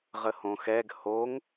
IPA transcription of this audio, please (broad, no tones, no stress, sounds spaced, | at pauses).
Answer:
ʁ ə h õ x ɛ ɡ h o ŋ